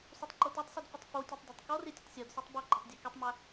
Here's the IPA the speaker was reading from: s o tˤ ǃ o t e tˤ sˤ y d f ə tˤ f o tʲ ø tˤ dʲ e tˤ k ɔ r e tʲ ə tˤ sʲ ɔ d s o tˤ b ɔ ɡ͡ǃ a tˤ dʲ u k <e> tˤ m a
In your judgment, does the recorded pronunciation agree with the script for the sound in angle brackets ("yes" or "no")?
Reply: yes